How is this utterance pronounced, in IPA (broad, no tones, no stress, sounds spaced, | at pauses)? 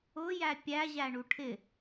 ʊ j æ pʲ æ ʑ æ ɳ u ʈʰ ɪ